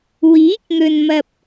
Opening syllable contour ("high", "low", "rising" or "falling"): rising